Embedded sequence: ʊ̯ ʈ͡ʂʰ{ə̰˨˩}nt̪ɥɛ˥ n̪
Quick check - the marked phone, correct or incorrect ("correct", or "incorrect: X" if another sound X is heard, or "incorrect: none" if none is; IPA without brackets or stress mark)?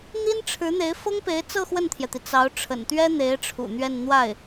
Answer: correct